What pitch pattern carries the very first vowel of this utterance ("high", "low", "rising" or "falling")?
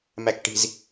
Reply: low